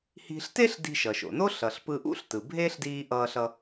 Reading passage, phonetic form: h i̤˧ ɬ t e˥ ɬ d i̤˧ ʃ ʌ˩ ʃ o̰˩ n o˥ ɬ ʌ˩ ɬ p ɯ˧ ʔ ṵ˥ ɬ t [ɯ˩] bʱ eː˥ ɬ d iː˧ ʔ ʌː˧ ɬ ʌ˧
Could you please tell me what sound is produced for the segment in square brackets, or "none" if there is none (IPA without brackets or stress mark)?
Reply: ɯ˩